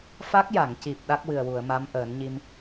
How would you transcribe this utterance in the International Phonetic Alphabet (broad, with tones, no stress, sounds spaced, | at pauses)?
f a˦˥ k̚ j a˨˩˨ ŋ c i˨˩ p̚ ɗ a˦˥ k̚ w ɨ˨˩ ə̯ w u˨˩˨ ə̯ m a˧˥ m ʔ əː˨˩˦ n ɲ i˧ m